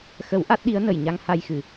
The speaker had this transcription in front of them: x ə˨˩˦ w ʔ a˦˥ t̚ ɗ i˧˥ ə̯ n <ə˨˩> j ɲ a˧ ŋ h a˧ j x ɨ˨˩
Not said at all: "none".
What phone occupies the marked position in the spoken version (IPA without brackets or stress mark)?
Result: ə˨˩